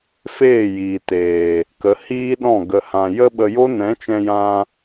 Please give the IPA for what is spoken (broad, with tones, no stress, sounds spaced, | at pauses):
f eː˦˨ j iː˨ t eː˨ | k ə˨˦ h iː˦ ɗ ɔ̃˦˨ ɡ ə˨ h ã˨ j ə˦ ɓ ə˧ j o˦ n ɛ̃˨˦ t͡ʃ ɛ̃˧ j ã˧